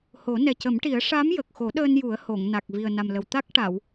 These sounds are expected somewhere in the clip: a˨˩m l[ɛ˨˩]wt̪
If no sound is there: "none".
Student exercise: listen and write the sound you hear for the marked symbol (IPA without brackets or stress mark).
ə˨˩